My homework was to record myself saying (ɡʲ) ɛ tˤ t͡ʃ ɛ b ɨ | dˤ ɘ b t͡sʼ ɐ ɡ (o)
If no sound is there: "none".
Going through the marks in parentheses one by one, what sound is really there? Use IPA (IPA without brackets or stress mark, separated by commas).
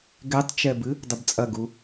ɡ, u